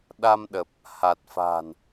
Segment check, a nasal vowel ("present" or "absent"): absent